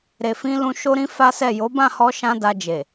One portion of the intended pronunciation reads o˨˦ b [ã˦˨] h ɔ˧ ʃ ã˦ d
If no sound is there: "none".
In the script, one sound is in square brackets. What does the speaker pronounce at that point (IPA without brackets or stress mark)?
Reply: ã˦˨